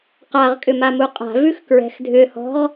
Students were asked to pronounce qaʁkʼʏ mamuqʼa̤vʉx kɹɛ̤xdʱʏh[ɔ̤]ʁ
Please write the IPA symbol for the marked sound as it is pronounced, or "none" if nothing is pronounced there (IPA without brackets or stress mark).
ɔ̤